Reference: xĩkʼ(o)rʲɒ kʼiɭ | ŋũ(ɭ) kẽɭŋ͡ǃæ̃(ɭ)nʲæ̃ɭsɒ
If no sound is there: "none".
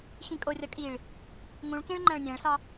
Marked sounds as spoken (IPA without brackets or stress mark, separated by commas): o, ɭ, ɭ